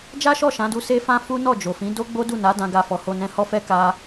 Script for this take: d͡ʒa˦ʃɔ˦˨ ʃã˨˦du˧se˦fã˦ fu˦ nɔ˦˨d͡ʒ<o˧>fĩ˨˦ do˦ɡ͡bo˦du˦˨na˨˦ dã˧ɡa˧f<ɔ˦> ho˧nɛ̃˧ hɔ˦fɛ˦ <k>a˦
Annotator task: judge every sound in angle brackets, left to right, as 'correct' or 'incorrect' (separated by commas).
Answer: incorrect, incorrect, correct